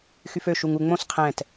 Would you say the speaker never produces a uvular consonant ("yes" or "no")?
no